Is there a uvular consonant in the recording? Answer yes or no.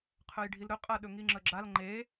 yes